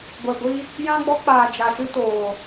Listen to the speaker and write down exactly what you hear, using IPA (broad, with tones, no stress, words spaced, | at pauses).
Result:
ɡʷɛ˨ɡʷi˧ | jã˧ ɡ͡bɔ˧k͡paː˨ d͡ʒa˨ ʃɨ˧toː˨